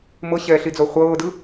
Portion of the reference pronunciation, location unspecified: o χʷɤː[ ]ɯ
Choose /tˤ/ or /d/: d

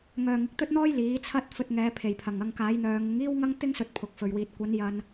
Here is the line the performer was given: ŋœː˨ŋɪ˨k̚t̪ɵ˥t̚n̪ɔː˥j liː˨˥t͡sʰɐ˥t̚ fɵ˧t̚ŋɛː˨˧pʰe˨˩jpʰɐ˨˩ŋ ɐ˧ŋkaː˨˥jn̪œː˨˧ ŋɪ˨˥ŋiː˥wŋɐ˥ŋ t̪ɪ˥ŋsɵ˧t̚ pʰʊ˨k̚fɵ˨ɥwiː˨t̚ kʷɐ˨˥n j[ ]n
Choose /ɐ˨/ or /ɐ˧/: ɐ˧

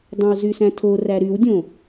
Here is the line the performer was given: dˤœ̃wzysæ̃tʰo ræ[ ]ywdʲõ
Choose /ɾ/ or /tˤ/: ɾ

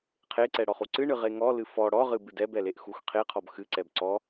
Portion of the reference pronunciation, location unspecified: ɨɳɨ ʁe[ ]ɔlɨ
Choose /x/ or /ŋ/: ŋ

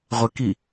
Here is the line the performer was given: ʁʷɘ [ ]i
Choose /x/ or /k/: k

